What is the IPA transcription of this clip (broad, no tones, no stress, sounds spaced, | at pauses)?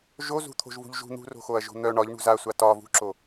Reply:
ʒ o z ṳ t̪ʰ o̤ ʒ v ṳ ʎ ʒ ṳ n̪ ṳ r o̤ x o ɐ̯ ʒ o̤ n̪ œ ɳ ɒ ʎ ɳ ṳ z a sʷ a t ɒ v ṳ ǁ o